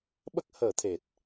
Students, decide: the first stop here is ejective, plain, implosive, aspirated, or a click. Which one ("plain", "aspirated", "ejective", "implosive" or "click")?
implosive